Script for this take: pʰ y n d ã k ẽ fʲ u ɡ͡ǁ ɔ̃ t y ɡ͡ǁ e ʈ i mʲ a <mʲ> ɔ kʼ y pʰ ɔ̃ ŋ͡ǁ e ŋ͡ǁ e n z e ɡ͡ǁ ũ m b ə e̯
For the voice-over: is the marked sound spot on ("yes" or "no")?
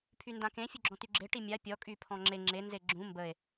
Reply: no